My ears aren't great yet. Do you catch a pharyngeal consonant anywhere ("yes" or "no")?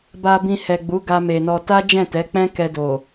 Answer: no